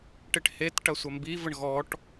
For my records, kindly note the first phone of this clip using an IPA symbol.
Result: ʈ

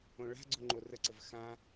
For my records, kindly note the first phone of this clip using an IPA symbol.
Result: õ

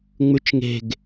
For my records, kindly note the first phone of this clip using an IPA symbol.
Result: ŋ͡m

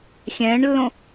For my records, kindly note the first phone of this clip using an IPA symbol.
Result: xʲ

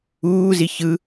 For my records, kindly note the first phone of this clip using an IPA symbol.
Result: uː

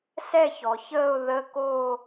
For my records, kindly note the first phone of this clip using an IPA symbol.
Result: s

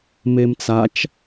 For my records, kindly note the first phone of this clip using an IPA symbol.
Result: m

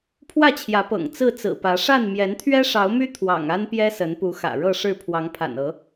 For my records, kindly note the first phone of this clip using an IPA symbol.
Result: pʰ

